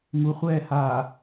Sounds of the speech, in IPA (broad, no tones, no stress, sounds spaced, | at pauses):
ŋ u χʷ ɛː h aː